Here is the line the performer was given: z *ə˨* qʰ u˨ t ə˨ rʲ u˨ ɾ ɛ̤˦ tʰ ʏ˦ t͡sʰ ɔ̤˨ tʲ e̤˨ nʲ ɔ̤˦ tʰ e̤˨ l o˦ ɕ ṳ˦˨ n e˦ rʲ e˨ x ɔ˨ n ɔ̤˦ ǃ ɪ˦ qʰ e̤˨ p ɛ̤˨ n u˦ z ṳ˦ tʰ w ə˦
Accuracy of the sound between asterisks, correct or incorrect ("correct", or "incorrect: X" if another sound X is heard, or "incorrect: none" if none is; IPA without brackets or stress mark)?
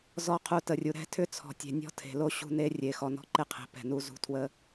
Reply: incorrect: ɔ˨